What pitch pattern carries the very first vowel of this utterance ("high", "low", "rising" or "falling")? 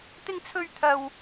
high